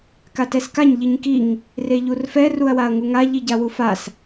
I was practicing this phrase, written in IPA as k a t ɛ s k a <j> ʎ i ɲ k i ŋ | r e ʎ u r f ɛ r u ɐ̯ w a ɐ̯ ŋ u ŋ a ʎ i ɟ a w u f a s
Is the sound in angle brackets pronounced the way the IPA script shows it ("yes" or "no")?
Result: no